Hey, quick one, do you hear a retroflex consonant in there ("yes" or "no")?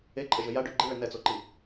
yes